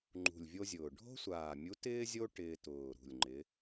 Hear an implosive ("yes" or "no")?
no